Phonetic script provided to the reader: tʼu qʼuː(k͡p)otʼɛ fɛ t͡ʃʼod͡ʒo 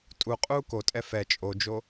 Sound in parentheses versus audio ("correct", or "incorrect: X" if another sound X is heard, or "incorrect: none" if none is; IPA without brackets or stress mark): incorrect: k